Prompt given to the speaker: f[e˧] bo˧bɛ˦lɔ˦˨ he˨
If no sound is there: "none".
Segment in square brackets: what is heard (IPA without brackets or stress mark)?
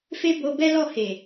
e˦